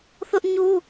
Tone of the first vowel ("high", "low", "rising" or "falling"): high